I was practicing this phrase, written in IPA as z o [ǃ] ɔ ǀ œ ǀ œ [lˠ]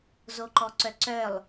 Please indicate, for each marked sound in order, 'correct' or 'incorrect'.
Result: correct, correct

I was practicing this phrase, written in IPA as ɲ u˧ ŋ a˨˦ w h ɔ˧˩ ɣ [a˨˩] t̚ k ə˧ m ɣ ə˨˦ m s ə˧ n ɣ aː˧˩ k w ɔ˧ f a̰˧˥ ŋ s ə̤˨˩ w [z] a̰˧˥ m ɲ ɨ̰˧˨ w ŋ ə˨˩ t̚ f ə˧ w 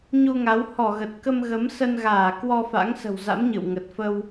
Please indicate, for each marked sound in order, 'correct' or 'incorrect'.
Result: incorrect: ə˨˩, correct

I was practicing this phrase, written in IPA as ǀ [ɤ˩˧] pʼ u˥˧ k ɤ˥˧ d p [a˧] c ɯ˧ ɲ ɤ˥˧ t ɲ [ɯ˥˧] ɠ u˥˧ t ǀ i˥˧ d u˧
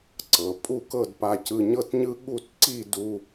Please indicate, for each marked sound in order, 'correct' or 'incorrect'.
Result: correct, correct, incorrect: ɯ˥

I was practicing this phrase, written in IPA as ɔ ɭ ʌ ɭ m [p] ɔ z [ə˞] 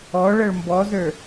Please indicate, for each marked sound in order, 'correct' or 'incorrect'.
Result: incorrect: b, correct

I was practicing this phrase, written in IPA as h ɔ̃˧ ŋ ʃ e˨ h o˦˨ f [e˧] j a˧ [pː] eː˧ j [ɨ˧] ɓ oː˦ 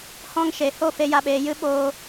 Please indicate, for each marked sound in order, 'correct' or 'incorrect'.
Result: correct, incorrect: ɓ, incorrect: ɨ˦

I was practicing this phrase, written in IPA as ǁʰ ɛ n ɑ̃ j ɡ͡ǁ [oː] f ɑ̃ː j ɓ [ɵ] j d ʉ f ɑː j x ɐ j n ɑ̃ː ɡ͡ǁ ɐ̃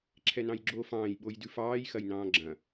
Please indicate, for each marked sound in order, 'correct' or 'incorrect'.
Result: correct, incorrect: o

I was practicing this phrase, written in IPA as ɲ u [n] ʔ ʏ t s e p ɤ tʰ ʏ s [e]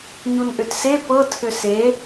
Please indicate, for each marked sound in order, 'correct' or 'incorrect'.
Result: correct, correct

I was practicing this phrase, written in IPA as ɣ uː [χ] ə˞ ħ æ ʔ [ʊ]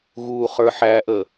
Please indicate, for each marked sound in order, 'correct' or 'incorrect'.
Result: correct, incorrect: ə

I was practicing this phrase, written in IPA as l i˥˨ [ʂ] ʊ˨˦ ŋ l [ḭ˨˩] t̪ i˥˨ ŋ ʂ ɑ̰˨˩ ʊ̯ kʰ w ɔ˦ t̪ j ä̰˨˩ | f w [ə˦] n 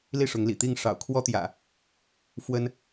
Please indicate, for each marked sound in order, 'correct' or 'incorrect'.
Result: correct, correct, correct

